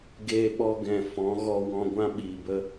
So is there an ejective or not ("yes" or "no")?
no